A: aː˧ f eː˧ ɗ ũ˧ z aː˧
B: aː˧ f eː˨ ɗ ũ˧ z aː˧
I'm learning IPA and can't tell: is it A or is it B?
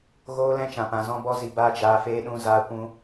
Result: A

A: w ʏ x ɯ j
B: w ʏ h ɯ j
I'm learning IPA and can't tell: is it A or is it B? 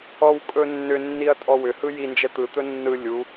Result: B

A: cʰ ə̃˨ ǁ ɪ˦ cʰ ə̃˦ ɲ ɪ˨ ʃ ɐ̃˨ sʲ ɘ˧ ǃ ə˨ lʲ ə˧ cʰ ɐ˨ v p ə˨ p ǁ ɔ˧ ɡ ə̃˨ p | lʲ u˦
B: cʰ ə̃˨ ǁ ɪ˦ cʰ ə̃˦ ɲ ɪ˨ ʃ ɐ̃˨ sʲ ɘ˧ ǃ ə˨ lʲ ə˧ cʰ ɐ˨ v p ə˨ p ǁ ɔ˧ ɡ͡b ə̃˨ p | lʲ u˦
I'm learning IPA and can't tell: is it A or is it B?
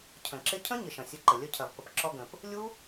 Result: A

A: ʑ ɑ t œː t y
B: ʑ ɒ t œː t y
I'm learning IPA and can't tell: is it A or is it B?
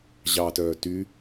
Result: A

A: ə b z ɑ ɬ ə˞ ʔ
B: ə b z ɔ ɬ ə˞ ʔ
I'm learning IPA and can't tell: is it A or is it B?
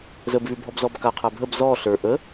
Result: B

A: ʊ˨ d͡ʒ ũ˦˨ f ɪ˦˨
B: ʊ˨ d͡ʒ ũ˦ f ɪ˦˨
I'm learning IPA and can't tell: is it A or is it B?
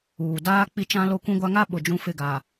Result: B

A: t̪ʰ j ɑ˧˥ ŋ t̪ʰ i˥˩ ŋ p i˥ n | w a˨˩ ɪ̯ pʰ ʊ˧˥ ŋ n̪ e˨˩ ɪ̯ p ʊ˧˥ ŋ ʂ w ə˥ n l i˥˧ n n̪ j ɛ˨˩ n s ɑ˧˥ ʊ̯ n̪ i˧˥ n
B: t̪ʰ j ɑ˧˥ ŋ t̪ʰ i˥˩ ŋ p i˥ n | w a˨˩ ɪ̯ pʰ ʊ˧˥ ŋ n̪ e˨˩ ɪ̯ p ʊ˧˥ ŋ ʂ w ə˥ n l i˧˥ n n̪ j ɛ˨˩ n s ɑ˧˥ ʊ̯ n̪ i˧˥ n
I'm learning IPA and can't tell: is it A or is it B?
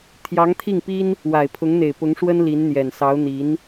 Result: B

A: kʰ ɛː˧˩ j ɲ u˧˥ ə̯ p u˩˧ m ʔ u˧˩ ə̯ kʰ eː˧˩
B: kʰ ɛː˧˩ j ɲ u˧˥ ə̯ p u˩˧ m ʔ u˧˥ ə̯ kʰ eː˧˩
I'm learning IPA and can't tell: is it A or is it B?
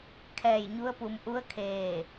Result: B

